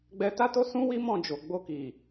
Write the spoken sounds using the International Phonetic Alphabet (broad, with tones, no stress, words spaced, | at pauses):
ɡ͡bɛ˧ta˦to˦ sũ˦wi˦ mɔ̃˦˨d͡ʒo˨ ɡ͡bo˧ki˨